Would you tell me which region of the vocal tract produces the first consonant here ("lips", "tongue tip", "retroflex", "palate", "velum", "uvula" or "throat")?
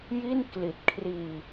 palate